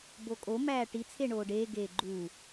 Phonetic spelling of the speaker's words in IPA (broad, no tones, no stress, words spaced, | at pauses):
bokʼo mæːʈit͡sʰe ɳoːɖeː ɡeːɡ͡ǃuː